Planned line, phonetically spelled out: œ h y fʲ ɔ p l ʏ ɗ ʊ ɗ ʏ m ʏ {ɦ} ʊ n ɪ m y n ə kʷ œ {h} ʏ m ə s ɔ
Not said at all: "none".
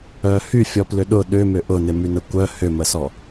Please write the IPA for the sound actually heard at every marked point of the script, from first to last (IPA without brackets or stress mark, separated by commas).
ʔ, h